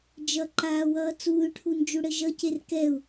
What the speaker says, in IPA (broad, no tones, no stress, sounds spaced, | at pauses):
d͡ʒ ʌ ǃ aː w ʌː t͡s uː y̯ ʈʰ u n d͡ʒ u ɽ ɘ ʒ ʌ c e r k ɛ u̯